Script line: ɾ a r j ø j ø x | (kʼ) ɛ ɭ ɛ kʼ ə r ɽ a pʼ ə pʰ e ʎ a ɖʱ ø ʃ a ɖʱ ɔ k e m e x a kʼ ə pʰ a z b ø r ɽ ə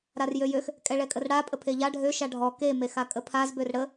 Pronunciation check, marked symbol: correct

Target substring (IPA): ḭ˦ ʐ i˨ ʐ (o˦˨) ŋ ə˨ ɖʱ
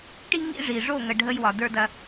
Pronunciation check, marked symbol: correct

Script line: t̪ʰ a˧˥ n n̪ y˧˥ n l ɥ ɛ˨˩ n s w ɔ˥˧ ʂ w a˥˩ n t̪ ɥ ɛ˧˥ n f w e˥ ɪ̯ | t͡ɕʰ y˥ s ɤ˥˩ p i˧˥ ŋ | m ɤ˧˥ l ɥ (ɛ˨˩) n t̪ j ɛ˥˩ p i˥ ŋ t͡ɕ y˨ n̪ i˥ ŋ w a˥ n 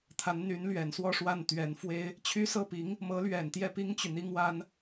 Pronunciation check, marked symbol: correct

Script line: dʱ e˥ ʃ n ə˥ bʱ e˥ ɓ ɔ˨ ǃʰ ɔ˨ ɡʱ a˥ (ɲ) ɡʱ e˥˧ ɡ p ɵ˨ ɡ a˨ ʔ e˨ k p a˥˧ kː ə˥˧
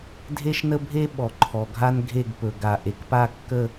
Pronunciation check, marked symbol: incorrect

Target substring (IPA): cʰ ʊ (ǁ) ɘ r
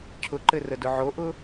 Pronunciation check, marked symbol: incorrect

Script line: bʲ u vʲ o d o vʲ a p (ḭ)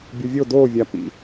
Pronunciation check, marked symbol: correct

